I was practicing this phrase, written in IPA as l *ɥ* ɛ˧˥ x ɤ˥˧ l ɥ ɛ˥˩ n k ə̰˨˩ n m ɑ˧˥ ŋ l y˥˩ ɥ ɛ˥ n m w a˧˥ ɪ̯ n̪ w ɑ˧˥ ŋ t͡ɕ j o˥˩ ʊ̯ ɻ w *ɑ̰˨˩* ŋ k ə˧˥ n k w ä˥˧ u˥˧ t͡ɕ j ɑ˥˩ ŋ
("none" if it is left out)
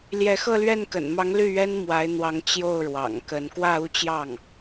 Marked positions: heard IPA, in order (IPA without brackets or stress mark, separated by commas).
j, ɑ̰˨˩